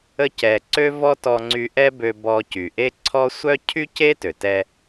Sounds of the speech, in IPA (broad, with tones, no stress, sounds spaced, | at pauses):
ə˧ c ɛ˩ ǀ ø˥ v ɔ˥ t ɔ˧ ŋ͡ǀ y˧ ʔ ɛ˥ b ø˧ b ɔ˧ c y˩ ʔ e˥ ǀʰ ɔ˥ sʷ œ˥ cʰ y˥ c e˥ t ø˩ t ɛ˧